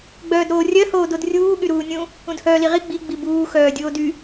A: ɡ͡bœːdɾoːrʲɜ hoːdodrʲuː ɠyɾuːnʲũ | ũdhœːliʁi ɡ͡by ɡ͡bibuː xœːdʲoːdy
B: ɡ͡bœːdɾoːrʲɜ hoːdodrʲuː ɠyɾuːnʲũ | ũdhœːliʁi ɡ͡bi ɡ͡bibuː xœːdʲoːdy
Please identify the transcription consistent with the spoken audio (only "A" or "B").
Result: B